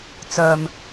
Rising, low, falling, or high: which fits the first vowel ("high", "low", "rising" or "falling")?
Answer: low